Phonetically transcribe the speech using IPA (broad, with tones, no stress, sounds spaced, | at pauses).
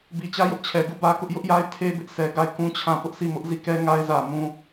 b i˨ t͡ɕ ä˦ j ʊ˦ ʔ t͡ɕʰ ɛ˨ ɡ u˦˨ b ä˦ k ʊ˦ ʔ j ʊ˦ ʔ j a˦ ɪ̯ tʰ e˦ b ɪ˦ ʔ s ɛ˨ ɡ a˦˨ ɪ̯ k ũ˦ t͡ɕʰ ã˦˨ p ʊ˦ ʔ sʰ i˦˨ m ʊ˦ ʔ z i˦˨ k ɛ˦ ŋ a˦ ɪ̯ z ä˨ m ũ˨